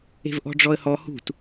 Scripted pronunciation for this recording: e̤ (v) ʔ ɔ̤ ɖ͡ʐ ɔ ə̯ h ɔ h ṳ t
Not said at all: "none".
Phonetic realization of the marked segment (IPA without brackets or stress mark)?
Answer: v